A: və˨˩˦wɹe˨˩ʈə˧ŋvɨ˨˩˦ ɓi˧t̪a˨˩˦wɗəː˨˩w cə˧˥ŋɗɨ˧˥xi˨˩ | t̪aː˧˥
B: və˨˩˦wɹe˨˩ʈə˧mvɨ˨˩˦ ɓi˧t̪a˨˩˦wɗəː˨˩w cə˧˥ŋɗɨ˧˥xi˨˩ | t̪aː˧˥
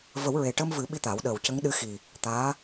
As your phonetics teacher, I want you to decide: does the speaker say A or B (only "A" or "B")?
B